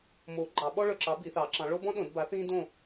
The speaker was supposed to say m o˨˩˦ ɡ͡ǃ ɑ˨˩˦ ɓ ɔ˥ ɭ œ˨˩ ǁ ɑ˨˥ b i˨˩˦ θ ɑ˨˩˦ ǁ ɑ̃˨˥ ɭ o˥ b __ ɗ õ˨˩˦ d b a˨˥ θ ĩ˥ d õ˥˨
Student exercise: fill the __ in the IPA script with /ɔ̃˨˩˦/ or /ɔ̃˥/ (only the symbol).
ɔ̃˥